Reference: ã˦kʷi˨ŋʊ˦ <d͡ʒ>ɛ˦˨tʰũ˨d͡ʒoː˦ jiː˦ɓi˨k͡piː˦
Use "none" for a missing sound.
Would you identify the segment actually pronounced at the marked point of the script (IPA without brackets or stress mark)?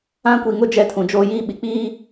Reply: d͡ʒ